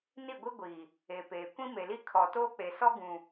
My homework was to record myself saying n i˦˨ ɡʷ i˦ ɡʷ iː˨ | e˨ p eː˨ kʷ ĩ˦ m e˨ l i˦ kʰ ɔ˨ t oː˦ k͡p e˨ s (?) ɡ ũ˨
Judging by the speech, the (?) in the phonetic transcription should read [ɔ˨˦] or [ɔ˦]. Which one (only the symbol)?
ɔ˦